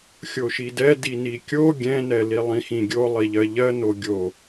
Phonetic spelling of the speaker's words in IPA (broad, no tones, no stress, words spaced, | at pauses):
xʲoʃidɛ dinikʲo ɡʲɛ̃nɛ lilˠĩxĩɡʲo lˠiʎɜʎɜ noɡʲo